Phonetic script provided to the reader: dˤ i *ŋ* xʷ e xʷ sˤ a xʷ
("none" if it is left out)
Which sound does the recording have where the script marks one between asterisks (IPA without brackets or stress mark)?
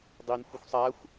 n